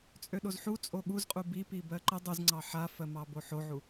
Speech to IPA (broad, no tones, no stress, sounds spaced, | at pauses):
t͡sʼ ø ɗ o z ħ u t͡sʼ o ɠ u z qʼ u b i p i b ɜ ǃ ə dˤ u z ŋ͡ǀ ɑ ħ a f ɜ m ɑ b o ħ o ʕ u